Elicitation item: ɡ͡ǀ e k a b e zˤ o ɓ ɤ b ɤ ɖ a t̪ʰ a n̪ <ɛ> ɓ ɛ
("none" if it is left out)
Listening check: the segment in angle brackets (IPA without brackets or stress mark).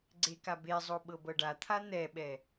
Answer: ɛ